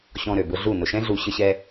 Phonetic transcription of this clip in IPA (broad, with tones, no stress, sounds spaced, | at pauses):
ɕ ɔ̃˧ ɾ ø˨ b ʊ˧ ɮ u˦˨ n ʊ˨ ʃ ɛ̃˦ ɮ u˨ ɕ ə˦ ɕ ɛ˦